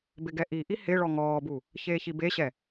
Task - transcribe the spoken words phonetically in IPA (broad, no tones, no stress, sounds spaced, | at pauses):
b ɪ ɡ ɛ ʔ i ʔ i h ɪ ɭ ɔ ŋ ɔː b u | ç eː ç i b e ɕ ɛ